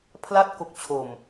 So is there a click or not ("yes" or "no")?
no